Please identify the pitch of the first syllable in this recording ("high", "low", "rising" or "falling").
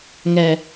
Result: low